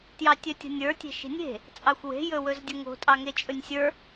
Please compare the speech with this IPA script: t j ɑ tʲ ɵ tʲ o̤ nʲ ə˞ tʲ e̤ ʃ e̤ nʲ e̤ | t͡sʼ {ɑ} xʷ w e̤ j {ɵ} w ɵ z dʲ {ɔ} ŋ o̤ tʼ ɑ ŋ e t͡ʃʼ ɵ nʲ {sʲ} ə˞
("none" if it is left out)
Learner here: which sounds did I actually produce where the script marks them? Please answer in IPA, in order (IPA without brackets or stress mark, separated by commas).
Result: ɑ, ɵ, ə, sʲ